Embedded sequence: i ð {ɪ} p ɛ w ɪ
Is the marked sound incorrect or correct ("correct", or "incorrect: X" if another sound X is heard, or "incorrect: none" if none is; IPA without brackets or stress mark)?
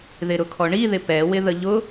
correct